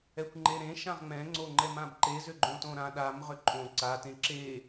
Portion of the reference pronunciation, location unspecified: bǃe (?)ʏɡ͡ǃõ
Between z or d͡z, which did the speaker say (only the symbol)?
z